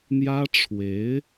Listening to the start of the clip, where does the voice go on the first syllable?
high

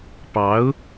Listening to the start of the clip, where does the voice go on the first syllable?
rising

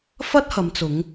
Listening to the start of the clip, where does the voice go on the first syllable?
high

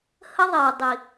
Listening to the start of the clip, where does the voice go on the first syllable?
high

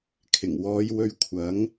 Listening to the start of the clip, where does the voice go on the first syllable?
low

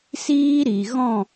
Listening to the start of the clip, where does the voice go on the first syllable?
high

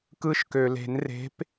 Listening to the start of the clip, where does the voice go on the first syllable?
high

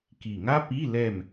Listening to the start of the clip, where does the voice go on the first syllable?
low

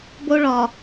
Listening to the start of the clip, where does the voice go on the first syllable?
high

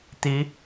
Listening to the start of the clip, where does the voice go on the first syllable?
rising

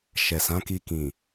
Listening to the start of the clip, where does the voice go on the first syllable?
low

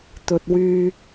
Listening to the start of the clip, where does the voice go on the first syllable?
low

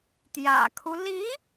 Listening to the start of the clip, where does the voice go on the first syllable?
low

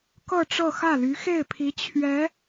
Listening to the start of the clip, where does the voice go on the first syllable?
falling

